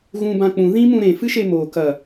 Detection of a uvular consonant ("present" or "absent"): absent